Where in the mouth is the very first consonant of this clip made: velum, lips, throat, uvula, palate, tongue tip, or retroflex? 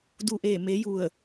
tongue tip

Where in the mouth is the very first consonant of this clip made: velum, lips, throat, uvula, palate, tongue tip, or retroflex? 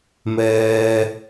lips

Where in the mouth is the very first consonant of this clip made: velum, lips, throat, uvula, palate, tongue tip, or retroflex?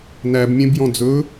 tongue tip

